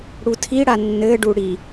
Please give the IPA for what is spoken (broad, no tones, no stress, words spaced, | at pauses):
ɽutʰiɽa nːɘɖu ɽi